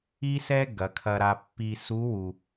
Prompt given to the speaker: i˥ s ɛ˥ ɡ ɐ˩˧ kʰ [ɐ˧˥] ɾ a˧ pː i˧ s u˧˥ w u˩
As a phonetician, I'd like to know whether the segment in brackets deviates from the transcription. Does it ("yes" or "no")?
yes